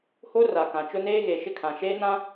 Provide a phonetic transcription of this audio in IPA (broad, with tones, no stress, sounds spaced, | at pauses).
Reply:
h o˦ r a˨ k ã˨ t͡ʃ ʊ˦ n eː˦ ɣ e˨ ʃ ɪ˦ kʰ ã˨ ʃ eː˦ n ã˦